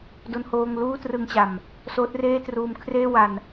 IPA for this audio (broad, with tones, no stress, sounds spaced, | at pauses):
d o˥˩ n h oː˥˩ ŋ l uː˥˩ t r ɯ˧ ŋ t͡ɕ a˨˩ m | s oː˦˥ t̚ r eː˥˩ t r uː˧ m kʰ r eː˥˩ w a˧ n